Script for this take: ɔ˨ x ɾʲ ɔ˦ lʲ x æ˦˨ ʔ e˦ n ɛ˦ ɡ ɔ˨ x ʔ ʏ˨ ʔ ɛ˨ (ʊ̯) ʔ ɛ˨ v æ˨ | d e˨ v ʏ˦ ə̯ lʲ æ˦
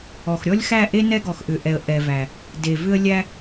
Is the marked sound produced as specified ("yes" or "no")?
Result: no